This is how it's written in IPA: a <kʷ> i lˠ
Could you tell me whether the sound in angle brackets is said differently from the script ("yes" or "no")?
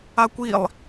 no